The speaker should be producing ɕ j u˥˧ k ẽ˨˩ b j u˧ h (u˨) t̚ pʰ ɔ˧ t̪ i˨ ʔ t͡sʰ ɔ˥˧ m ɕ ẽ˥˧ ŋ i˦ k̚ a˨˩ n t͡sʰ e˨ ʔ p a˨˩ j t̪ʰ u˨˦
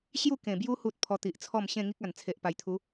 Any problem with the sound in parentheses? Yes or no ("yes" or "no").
no